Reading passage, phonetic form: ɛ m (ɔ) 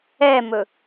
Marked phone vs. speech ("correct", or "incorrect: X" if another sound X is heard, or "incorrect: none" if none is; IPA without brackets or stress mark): incorrect: ɵ